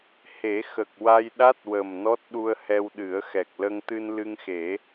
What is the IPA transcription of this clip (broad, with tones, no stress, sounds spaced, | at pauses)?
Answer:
h e˨˩˦ x ə˨˩ k̚ w a˧ j ɗ a˦˥ t̚ w ə˨˩ m n ɔ˦˥ t̚ ɗ u˧ ə̯ h ɛ˧ w ɗ ɨ˨˩˦ ə̯ x ɛ˨˩ k̚ l ə˧ ŋ t̪ ɨ˧ n l ɨ˧ ŋ x e˨˩˦